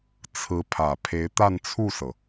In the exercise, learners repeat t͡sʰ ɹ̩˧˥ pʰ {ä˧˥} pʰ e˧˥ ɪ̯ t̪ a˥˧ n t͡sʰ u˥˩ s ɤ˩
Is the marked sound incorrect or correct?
incorrect: ä˨˩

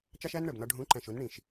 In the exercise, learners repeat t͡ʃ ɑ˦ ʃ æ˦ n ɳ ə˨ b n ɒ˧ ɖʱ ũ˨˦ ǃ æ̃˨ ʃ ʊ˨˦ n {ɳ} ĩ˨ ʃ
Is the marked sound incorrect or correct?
correct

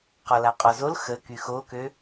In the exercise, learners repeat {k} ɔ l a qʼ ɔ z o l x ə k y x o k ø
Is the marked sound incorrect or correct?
incorrect: q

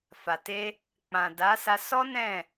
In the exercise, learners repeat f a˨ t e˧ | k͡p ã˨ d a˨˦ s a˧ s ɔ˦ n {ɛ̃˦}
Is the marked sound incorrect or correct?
incorrect: ɛ̃˦˨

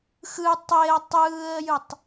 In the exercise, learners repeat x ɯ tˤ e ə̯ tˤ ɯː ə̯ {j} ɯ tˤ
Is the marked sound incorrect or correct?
correct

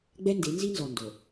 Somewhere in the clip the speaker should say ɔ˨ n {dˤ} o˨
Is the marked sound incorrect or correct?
incorrect: d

